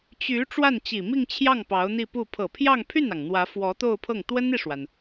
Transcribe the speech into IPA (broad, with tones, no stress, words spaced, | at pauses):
t͡ɕy˧˥ ʈ͡ʂwa˥˩nt͡ɕi˨˩mi˥˧ŋt͡ɕʰjɑ˥˩ŋ pɑ˧˥ʊ̯n̪i˥˧pu˥˩ pʰɤ˨˩pʰjɑ˥˧ŋpʰy˥˩nɑ˩ŋ n̪wä˧˥fwɔ˧˥ t̪o˥˧ʊ̯pʰɤ˥˩ŋ t̪wə˥ni˨ʂwa˩n